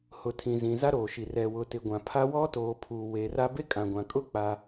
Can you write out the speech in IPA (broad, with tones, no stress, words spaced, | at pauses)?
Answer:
hʊ˨tʰĩ˨zĩ˨ za˦ɾoː˨ʃi˨ rɛ˨wʊ˨tɪ˨ɡʷã˨ pʰa˦ wɔ˦toː˨pʰuː˨ we˨ra˦ be˦ kʼã˨ɡʷã˨kʼʊ˦ k͡pa˦